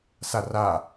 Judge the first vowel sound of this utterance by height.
low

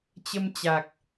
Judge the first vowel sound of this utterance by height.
mid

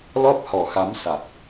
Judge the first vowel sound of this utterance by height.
mid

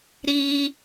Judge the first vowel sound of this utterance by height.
high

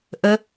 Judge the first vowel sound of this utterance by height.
mid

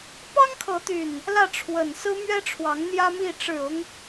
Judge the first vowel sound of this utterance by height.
low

